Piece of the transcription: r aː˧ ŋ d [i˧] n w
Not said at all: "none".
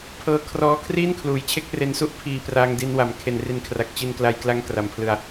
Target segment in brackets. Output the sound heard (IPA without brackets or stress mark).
i˧